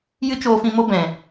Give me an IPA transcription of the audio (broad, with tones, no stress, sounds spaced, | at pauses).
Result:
j ɨ˦ t͡ʃ oː˧ f ĩ˧ m o˦ b ɛ̃˨